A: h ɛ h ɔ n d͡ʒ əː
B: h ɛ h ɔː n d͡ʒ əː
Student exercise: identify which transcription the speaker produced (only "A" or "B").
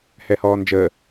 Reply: B